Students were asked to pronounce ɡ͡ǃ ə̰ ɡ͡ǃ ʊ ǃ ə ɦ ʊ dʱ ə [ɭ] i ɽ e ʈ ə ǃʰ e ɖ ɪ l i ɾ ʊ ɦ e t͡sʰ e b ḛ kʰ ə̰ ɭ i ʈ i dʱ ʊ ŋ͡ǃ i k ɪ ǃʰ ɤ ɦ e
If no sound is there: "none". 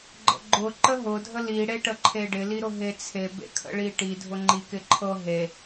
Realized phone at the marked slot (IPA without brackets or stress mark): l